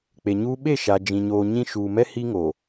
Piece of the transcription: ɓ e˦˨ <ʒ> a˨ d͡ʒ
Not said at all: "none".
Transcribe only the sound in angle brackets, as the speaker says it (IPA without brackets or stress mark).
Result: ʃ